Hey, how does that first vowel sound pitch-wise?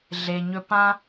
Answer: low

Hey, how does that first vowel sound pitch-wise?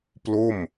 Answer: falling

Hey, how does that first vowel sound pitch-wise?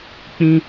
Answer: high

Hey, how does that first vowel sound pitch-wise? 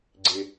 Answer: low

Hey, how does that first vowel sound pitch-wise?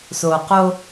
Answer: low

